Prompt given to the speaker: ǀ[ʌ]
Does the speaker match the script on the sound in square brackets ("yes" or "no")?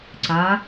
no